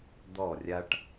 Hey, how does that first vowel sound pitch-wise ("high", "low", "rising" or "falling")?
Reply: falling